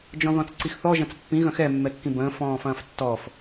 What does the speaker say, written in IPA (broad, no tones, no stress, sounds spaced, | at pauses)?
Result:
d͡ʒ ɔ̃ ð ɔ̃ t͡s ǀ i x θ ɔ ʒ ɐ̃ t͡s pː ĩ ɣ ɐ̃ x ɛ mː ɛ kː ĩ b ə̃ː f ɔ̃ː f ɐ̃ː f tː ɔː f